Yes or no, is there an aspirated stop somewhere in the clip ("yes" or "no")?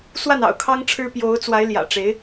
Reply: yes